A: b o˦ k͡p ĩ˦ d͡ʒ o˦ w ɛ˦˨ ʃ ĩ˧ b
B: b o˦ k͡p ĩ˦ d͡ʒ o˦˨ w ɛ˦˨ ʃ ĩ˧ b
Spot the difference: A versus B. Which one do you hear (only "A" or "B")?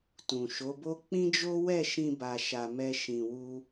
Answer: A